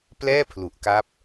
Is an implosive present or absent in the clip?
absent